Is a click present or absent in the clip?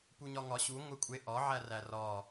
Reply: absent